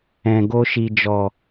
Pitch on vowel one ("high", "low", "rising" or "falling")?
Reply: low